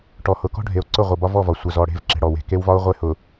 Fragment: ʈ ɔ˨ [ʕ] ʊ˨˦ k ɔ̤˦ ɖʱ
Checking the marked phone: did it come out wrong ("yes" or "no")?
yes